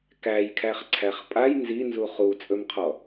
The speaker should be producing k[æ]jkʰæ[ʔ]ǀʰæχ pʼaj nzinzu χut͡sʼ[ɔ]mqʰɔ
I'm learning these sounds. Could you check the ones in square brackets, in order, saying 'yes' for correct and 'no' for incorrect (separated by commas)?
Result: yes, no, no